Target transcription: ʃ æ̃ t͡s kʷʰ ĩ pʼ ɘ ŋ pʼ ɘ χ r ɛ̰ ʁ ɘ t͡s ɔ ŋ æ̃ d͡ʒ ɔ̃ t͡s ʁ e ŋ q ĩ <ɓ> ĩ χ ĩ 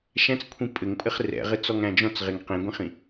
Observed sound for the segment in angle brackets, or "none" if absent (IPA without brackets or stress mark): ɡʷ